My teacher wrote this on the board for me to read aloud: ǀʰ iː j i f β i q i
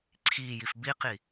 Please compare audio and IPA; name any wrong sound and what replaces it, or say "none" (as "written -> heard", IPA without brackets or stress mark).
β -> b